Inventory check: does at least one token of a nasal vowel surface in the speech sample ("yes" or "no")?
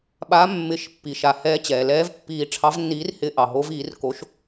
no